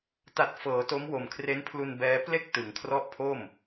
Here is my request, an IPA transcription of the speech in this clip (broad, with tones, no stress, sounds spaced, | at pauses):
t a˨˩ t̚ f ɤː˩˦ t o˦˥ m w o˨˩ m kʰ r e˦˥ n pʰ l u˧ n b ɛː˦˥ p l e˥˩ k̚ t ɯ˩˦ ŋ kʰ r ɔ˦˥ ʔ pʰ o˥˩ m